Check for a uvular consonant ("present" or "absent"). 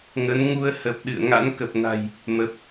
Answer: absent